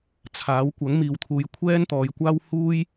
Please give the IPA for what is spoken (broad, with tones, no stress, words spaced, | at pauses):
t͡sʰaː˨˥wkʷɐ˨˥ŋ miː˨wt̪ʰuː˨˧j kʷʰɛː˥nt̪ɔː˨˧jkʷaː˥w huː˥j